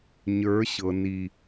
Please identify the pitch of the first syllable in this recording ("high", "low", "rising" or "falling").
rising